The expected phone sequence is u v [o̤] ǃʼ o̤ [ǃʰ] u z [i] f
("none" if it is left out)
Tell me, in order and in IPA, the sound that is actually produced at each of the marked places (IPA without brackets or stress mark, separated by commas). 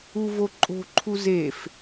o, ǃʰ, e